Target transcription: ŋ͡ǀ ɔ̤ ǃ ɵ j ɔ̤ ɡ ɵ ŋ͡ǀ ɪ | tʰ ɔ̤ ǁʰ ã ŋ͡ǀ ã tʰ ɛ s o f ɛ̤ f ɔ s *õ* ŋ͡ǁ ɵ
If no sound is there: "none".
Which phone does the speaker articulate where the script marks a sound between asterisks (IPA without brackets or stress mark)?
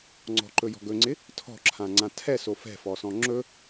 ɔ̃